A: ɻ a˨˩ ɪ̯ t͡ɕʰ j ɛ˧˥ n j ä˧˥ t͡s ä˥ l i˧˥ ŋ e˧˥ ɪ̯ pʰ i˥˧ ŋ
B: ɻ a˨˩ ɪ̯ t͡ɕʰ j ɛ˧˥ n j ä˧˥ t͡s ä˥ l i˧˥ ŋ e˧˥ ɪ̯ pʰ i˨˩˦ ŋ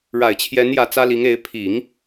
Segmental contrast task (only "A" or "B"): B